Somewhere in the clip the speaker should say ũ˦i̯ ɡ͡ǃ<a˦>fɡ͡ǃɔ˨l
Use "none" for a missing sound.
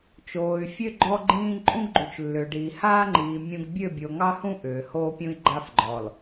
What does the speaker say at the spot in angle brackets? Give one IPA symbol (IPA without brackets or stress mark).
a˦